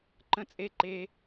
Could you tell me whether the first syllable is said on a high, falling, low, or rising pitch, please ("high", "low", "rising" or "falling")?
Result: low